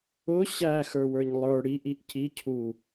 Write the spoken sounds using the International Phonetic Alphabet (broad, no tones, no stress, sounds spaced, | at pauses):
ʊ ɕ æ x ə˞ w ə˞ ɲ lˠ ə˞ ɽ i ʔ i ʔ c i cʰ u